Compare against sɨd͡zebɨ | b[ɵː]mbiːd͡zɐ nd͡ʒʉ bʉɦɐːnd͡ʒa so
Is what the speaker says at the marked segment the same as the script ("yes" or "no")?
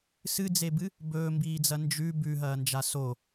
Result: yes